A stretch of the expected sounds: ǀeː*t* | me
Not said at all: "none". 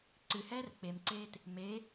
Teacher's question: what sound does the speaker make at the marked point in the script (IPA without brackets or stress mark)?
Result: t